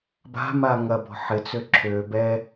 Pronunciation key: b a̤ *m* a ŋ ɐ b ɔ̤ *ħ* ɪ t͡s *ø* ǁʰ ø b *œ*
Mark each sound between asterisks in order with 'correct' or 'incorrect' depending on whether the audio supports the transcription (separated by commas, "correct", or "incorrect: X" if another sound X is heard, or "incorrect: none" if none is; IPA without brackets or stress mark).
correct, correct, correct, incorrect: ɛ